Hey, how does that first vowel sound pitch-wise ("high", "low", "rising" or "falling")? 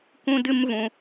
high